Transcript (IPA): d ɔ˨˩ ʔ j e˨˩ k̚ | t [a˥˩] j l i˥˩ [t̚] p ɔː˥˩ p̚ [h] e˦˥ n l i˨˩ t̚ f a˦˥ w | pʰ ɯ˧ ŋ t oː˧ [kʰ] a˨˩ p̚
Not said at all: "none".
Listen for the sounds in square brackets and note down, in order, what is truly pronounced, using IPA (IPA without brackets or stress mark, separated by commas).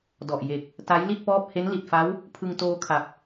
a˦˥, t̚, h, kʰ